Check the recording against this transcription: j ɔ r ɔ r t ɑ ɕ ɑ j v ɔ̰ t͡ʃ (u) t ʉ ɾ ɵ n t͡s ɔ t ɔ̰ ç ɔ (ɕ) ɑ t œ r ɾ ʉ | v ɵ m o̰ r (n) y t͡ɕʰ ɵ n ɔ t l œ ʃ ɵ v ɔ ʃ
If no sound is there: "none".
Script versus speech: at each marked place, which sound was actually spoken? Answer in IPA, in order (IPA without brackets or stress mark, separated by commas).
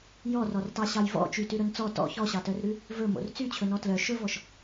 y, ɕ, t͡s